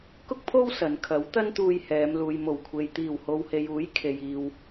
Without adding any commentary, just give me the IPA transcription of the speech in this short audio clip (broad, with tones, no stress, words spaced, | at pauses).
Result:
kʊ˥k̚pʰo˥w sɐ˨nkʰɐ˨˥w t̪ɐ˥nt̪uː˧jhɛː˨˧m luː˨j mo˨˩wkʷʰe˨j t̪iː˨˩who˨whe˨j uː˨˥jkʰe˨jiː˨w